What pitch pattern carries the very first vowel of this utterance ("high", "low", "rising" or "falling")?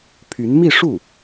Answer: rising